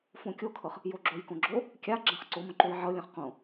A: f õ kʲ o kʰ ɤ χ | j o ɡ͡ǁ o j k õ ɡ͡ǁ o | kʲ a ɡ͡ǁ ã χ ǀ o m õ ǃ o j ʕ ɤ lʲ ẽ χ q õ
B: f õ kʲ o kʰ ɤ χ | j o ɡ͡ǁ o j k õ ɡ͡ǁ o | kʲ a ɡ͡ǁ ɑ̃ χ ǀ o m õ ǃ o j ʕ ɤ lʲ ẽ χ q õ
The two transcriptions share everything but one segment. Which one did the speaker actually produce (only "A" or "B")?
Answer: A